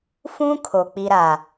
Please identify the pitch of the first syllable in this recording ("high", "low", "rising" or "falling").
high